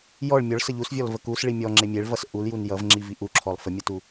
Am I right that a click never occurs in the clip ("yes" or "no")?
no